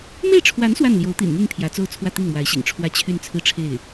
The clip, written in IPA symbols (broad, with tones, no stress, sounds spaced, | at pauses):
m e˥˩ ɪ̯ ʈ͡ʂʰ w a˧˥ n s w a˥˩ n l j o˧˥ ʊ̯ t̪ ḭ˨˩ n n̪ y˥˩ n pʰ j ä˧˥ t͡s o˥˧ ʊ̯ t͡sʰ w ä˥˧ t̪ i˥˩ ŋ m w a˧˥ ɪ̯ ɕ ḭ˨˩ ŋ ʈ͡ʂʰ w ä˥˧ t͡ɕʰ y˥˧ n t͡sʰ ɹ̩˥˧ ʈ͡ʂʰ e˥˩ ɪ̯